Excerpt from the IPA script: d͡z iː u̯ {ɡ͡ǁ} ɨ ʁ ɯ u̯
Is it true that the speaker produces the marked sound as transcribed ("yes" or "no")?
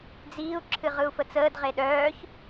no